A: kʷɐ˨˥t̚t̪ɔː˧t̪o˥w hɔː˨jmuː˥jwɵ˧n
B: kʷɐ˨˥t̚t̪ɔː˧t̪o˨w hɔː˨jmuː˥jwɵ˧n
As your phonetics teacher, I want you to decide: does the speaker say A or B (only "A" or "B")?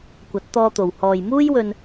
B